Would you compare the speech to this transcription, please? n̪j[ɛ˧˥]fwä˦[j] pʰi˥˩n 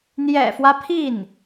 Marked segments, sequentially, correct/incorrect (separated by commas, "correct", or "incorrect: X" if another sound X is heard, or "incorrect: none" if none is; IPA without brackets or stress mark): incorrect: ɛ̰˨˩, incorrect: none